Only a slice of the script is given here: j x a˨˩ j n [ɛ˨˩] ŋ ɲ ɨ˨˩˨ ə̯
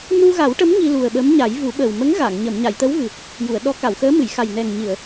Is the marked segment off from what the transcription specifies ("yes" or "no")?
no